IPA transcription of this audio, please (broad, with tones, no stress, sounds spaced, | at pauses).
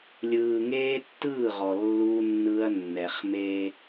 lʲ ɯː˨ ŋ eː˦ tː ɯː˦˨ ʁ ɔ˨ lː u˦ nː ɯ˦ ɐ̯ nː ɛ˨ χ m e˦